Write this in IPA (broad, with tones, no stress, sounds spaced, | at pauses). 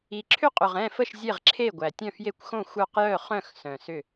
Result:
i˨˩ ǁʰ ʏ˥˨ qʼ ʏ˨˩ ʁ ɛ̃˥˨ f ə˥˨ ʃ zʲ e˥˨ ʁ ǁʰ e˥˨ ɡʷ æ˨˩ tʲ œ̃˥˨ f j e˥˨ kʷ x õ˥˨ xʷ œ˥˨ q j œ˥˨ χ œ̃˥˨ x s œ̃˨˩ s ʏ˥˨